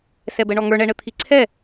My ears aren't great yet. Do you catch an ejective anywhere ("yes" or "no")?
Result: no